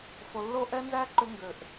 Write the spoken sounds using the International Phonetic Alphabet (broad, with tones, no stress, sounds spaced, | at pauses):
f o˧ lː o˦ ʔ ɛ˦ n z æ˦ ǃ ʏ˦ ŋ ɡ ø˧ ʔ